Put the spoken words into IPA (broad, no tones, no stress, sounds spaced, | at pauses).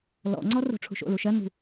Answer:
l ɔ̰ ŋ͡ǀ ɔ r o̤ ʈ͡ʂʰ ṳ ʃ o̰ l u ʃ ɜ n ṳ